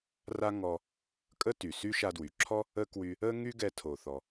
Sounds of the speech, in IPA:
r a˥ ŋ ɔ˧ | kʼ ə˥ t y˩ s y˥ ʃ a˧ d w y˩ ǁʰ ɔ˥ | ə˥ k w y˧ | ə˥ ŋ y˥ ɡ ɛ˧ tʰ o˩ θ ɔ˩

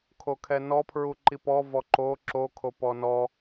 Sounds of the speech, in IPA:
kʰ o kʰ ɛ n ɔ pʰ ɹ u ǃ i p ɔ v ɔ ǃ o ǁ o kʰ o p ɔ n ɔ

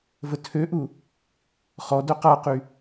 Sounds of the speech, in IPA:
v ə tʰ ø ʔ u | χ ɔ d œ q a q y

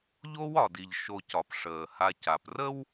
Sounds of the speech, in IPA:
ʎ o˦ w ɒ˩ d i˩ ʎ ʃ o˨ c ɒ˩ p ʂ əː˩ h a˨ c a˩ p r ə˥ w

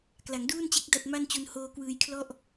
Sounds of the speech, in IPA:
k l a˩˦ ŋ d uː˥˩ n t͡ɕ e˦˥ k̚ d a˥˩ t̚ m a˥˩ n t͡ɕ u˧ n h oː˧ k w ɯː˧ j kʰ l ɔ˥˩ ʔ

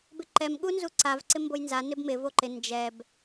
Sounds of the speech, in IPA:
b ɪ ǃ ɛ m ɠ u n z u ǀ a v ǀ ɪ m b o j n z a n ɪ b m ɪ v o ǃ ɪ n d͡ʒ ɛ b

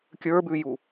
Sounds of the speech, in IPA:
kʲ ə˞ b ʉ j u

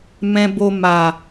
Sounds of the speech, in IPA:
m ɛ̃˧ b o˧ m a˨

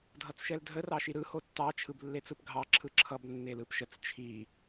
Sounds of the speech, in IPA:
dʱ ʌ t͡s ʃ ɛ l dʱ ə r ɑ ʃ i ɾ ɯ h o tː ɑ t͡ʃʰ ɯ b lː e t͡s ɯ p ɡʱ ɑ ǁʰ ɯ ǁʰ ʌ b nː e l ɯ p ʃ ə t͡s t͡ʃʰ i

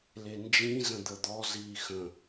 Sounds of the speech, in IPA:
l e n d͡ʒ ĩ z ə̃ d̪ ə d̪ ɔ z iː x ə̃

